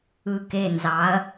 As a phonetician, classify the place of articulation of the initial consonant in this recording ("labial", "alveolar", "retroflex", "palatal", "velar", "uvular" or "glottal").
velar